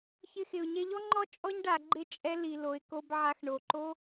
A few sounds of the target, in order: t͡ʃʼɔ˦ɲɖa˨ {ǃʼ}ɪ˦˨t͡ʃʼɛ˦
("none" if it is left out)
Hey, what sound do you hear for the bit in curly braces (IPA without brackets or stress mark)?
ɡ͡ǃ